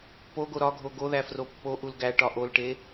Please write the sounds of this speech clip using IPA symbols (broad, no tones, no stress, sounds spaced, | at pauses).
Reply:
p o ɡ o ɾ ɒ ɡʱ o ɡ o ð æ f r o pː o ʔ u l ɡ æ ʈ ɒ ʔ o l ʈ e